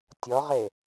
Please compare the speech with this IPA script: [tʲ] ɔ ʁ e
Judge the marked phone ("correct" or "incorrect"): correct